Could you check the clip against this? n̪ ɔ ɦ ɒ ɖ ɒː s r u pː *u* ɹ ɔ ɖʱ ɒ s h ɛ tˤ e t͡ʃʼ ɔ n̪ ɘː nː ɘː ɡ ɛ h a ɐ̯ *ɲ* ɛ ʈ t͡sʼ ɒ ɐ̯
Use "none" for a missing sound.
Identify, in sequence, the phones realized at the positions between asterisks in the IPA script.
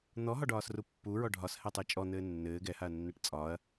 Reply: u, nː

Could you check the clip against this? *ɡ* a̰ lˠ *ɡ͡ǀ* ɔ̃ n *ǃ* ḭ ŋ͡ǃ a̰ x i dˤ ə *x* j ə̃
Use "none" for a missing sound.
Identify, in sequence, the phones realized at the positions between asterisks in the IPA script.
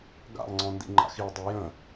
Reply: ɡ, ŋ͡ǀ, d, none

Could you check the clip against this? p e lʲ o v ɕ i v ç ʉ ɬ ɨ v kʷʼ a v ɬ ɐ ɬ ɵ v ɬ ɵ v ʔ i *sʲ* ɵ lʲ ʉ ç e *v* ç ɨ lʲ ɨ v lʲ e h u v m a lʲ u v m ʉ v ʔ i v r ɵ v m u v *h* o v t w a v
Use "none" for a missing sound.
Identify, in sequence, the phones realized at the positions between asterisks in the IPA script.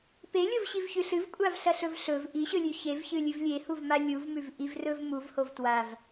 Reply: ɕ, v, h

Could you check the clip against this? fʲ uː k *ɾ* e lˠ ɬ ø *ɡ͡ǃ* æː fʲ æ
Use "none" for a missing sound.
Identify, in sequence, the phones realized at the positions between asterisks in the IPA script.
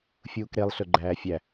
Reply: ɾ, ɡ͡ǃ

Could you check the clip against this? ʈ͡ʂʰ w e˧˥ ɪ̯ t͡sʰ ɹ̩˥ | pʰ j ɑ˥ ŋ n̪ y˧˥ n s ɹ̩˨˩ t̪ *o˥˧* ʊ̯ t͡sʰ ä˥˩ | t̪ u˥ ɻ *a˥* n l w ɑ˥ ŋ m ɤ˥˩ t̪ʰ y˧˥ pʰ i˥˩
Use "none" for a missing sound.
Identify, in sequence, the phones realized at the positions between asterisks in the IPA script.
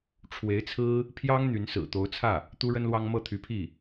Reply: o˧˥, ə˥

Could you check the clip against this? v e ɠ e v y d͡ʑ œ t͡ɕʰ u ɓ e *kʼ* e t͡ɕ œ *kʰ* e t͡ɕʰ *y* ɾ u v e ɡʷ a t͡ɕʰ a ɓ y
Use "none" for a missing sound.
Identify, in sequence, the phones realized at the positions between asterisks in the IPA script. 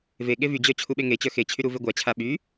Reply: ŋ, x, y

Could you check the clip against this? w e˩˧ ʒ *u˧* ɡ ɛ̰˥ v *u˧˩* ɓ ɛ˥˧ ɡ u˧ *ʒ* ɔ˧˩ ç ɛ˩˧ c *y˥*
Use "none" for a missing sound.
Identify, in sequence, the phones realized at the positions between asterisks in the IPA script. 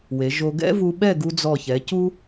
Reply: o˧, u˧, d͡z, u˥

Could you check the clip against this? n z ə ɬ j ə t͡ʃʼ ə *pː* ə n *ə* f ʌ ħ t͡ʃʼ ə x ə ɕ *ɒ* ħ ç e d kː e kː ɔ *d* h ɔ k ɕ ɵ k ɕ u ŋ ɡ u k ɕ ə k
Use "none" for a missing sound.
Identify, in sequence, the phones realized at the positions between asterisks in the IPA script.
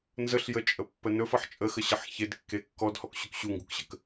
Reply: pː, ɵ, ʌ, d

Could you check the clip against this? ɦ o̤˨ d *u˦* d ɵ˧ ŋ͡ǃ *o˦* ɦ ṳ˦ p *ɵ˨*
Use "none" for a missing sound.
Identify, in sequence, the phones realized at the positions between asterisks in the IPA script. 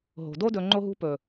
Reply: o˦, o˦, ɵ˨

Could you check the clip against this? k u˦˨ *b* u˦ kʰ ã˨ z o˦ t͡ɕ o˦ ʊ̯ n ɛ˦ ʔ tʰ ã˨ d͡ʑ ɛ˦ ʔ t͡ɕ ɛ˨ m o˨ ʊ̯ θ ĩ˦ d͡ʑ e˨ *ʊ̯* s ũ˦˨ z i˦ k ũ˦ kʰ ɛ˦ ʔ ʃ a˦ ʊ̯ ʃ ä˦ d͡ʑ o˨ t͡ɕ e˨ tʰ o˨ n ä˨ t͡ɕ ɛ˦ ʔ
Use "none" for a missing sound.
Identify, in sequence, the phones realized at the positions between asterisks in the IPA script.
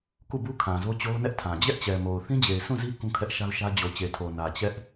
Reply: b, ɪ̯

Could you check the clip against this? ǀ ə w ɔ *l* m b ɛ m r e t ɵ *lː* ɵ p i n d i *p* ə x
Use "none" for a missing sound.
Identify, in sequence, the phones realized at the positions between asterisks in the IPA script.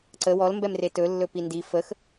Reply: l, lː, f

